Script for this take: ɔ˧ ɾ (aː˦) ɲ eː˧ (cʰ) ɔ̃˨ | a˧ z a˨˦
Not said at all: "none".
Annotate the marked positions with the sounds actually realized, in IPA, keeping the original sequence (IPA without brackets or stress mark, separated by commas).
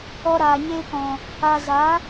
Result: aː˨, k